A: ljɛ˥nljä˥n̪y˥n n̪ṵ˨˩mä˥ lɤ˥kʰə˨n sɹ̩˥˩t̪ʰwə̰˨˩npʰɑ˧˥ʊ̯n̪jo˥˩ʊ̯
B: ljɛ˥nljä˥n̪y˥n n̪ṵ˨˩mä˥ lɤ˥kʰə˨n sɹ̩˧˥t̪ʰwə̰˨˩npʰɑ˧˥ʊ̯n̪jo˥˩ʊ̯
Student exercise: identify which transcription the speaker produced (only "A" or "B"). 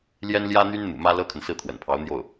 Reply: A